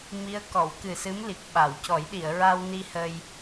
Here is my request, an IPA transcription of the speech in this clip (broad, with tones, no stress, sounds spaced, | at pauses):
m i˧˥ ə̯ k ɔ˨˩˨ w k ɨ˨˩ s ɨ˧˥ m l i˨˩ k̚ ɓ a˨˩˨ w c ɔ˨˩˦ j ɗ i˨˩˨ ə̯ ɹ a˧ w n i˧ h ə˧ j